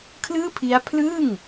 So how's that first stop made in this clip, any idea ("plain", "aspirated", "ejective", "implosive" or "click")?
aspirated